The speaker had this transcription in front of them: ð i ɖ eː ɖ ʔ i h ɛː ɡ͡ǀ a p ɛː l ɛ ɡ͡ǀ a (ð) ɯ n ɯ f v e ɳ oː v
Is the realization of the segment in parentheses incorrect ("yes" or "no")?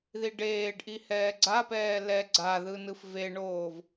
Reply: no